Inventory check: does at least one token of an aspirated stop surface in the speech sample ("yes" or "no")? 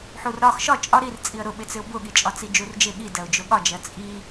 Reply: no